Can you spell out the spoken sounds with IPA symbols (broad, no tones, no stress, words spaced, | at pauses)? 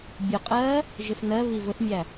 bʲʊ qʼɜ | ʒɪfnɜβi vʊθmʲæ